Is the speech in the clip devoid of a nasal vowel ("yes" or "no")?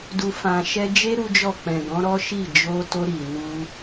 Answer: no